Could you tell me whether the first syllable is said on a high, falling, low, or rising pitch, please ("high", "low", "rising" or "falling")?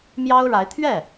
high